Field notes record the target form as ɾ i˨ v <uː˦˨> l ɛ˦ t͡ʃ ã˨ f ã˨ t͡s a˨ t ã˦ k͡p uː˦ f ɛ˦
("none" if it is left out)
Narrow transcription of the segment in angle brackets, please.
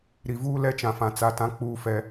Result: uː˦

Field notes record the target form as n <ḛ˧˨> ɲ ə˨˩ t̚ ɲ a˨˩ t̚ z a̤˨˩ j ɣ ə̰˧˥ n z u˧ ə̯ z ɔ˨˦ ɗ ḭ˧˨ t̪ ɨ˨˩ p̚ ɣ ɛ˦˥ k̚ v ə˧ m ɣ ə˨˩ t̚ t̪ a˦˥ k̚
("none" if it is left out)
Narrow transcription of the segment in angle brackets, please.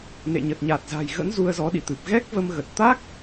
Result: ḛ˧˨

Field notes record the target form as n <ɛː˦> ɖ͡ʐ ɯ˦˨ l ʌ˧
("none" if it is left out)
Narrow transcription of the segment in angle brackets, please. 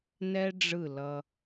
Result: ɛ˦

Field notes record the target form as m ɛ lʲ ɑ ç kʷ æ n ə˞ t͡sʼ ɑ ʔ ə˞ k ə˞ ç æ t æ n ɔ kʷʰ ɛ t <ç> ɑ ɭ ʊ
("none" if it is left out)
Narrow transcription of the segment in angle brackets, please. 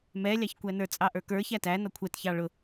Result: ç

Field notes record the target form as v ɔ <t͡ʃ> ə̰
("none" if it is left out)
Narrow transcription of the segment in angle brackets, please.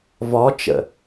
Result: t͡ʃ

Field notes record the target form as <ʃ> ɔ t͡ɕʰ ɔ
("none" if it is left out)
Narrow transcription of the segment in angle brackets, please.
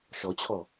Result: ʃ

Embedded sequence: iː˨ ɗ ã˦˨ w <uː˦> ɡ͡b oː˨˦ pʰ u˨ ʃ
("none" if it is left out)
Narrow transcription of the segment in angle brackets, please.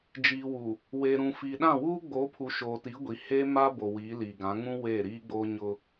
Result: uː˦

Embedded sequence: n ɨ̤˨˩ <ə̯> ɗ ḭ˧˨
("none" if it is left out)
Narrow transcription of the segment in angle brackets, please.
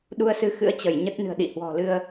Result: ə̯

